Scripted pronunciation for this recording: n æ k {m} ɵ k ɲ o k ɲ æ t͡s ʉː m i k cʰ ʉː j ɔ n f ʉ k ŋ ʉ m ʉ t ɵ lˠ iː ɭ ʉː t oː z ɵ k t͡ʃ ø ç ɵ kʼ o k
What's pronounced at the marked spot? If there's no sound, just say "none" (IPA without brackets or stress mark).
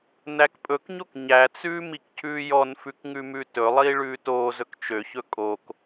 pʼ